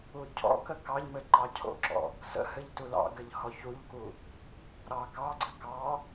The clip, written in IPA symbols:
u cʰ ɔ̰ k ə k ɑ ʎ m ɘ ǃ ɑ cʰ o̰ ǁ ɔ̰ | s ə̰ h ɘ ʎ t u l ɑ̰ ɡ ɘ ʎ h ɔ ç u ʎ k u | ɾ ɑ k ɑ ɡ͡ǀ ɘ k ɑ

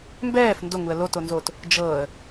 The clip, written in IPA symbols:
m b ɛː f n d o ŋ u ə̯ l o t o n z oː t | d͡ʒ ɤː ə̯

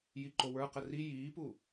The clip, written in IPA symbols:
j i ǃ o w ə˞ q ə r i j iː p u

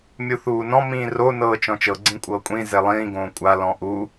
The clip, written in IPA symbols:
mʲ u θ uː n ɔ̃ m ĩː r o n ɤː t͡ʃ ɔ̃ t͡ʃ ɤ ɡ͡ǀ ĩ kʷʼ ɤː kʷʼ ĩ z e lˠ ĩː ɡ õː kʷʼ a l ɔ̃ ʔ u

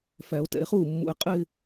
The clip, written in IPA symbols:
f æ˨˩˦ o̯ t ɛ̰˨˩˦ e̯ χ uː˥˩ mː ṵ˨ e̯ qʼ ɪː˥˧

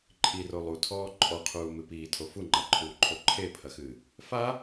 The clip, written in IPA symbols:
ǃʼ i r o lˠ u tʰ ɔː ǃʼ ɔ qʰ uː m ɨ p iː tʰ o f u ŋ͡ǃ a ǃʰ uː ǃʰ o ǃʰ e pʰ ɐ x ɨː | f a

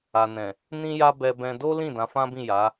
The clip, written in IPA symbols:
a˨ n ɛ̃˨ | n ĩ˦ j a˦ b ɛ˧ b ɛ̃˧ d o˦ l ĩ˦˨ d ã˨˦ f ã˦ b ĩ˦˨ j a˨˦

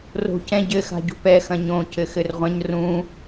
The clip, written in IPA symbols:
r o̤ c ɛ̃ ɟ ɘ x a̤ ɟ ṳ p ɛ x ɐ̃ ɲ õ c ɘ x ɘ r ʁʷ ɐ̃ ɲ r ũ

